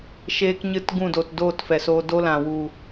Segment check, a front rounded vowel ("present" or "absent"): absent